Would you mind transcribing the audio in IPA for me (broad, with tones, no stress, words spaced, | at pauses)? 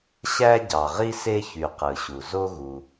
ɕæ˥ɟɑ˩ʁi˥ se˥çy˩ qɯ˩ɕu˩zo˥ ɣu˩